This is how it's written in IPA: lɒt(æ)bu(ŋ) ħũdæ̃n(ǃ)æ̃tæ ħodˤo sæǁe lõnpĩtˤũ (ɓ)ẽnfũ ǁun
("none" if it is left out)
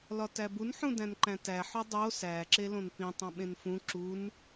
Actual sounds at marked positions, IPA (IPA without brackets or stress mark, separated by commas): æ, n, ǃ, ɓ